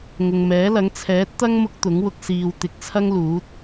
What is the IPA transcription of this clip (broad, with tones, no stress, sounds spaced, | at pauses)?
ŋ ʊ˨ ŋ m ɛː˨˥ l ɐ˨˥ ŋ t͡sʰ ɛː˨˥ t̚ t̪ ɐ˥ ŋ m ʊ˥ k̚ t̪ ʊ˨˥ ŋ w ʊ˧ k̚ s iː˨ w t̪ ɪ˨˥ k̚ t͡sʰ ɐ˥ ŋ l uː˨˥ t̚